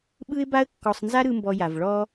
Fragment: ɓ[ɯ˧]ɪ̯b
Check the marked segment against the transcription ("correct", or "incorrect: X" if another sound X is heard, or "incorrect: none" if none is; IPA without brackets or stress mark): incorrect: ɯ˥